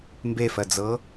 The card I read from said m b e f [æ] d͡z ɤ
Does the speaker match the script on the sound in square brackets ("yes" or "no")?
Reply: no